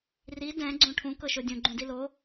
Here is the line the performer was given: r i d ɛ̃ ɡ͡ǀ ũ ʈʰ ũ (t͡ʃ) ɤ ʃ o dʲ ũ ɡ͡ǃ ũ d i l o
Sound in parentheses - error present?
yes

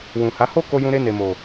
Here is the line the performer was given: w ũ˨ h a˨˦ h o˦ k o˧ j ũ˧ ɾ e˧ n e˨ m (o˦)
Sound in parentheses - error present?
yes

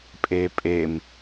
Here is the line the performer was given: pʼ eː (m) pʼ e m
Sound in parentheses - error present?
yes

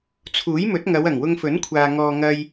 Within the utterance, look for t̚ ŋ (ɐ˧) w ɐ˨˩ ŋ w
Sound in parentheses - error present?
yes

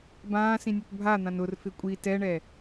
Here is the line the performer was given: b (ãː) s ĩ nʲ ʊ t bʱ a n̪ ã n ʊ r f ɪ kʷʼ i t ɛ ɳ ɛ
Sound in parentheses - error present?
no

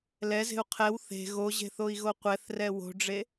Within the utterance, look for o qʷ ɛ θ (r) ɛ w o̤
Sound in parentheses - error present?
no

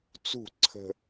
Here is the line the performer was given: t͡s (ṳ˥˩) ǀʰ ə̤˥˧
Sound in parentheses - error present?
no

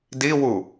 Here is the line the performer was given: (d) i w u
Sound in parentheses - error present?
no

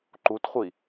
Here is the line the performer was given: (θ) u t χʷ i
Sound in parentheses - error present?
yes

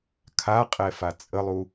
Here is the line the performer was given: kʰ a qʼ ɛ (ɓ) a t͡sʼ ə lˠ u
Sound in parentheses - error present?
yes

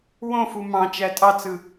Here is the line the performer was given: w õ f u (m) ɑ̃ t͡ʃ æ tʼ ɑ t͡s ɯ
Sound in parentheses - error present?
no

